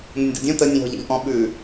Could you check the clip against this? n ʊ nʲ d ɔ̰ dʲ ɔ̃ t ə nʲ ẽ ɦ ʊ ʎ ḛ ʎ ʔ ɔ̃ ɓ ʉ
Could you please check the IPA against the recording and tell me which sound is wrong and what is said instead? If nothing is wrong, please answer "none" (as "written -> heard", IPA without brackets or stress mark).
none